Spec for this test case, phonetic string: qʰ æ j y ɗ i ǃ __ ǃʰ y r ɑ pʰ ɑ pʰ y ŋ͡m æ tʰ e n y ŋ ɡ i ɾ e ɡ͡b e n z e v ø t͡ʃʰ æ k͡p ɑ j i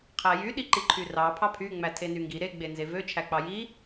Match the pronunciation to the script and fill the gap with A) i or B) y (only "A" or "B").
A